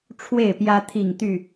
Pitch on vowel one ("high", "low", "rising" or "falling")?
falling